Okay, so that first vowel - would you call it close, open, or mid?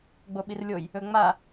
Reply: mid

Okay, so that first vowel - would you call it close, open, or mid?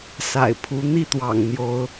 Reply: open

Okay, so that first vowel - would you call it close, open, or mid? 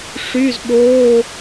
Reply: close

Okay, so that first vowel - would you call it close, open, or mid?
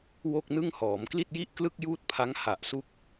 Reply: mid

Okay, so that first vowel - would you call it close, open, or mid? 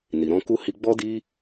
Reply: close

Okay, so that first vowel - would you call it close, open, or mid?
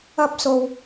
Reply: open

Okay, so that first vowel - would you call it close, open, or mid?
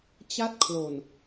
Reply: open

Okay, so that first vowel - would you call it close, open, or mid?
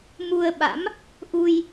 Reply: close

